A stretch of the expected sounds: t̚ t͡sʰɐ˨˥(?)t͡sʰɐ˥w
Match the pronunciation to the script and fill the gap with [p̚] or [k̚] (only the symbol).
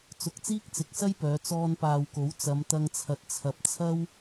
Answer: p̚